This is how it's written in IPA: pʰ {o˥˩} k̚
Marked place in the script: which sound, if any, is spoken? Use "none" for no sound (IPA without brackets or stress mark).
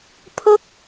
o˥˩